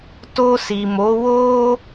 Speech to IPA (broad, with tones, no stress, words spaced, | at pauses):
to˧si˨mo˨˦ wo˦